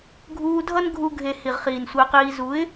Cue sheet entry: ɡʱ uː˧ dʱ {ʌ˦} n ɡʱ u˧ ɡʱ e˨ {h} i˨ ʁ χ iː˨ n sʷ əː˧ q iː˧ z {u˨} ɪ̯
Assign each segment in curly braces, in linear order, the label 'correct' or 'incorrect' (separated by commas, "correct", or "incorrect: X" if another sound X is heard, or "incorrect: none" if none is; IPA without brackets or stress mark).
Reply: correct, correct, incorrect: u˨˦